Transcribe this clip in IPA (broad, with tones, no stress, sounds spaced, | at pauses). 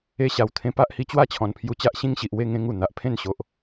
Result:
e˧ ɕ a˨˩ w t̪ʰ ẽ˧ p a˦ ʔ h i˧ t͡ɕ w a˥˧ t͡ɕʰ ɔ̃˨˩ n pʰ j u˧ t͡ɕ a˦ ʔ ɕ ĩ˦ ŋ ɕ i˨ ʔ w e˥˧ ŋ ẽ˦ ŋ u˨˩ n̪ a˨ ʔ pʰ ẽ˥˧ n ɕ o˨ ʔ